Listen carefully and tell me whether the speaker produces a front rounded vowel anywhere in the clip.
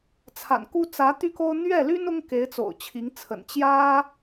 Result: yes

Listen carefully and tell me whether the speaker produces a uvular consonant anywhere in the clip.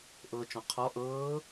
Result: yes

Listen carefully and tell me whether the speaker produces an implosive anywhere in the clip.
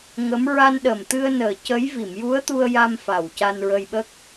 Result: yes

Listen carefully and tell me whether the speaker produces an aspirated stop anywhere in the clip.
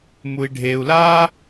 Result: no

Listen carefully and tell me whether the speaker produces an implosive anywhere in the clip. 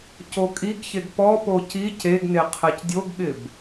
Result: yes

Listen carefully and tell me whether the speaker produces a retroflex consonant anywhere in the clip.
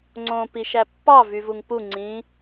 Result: no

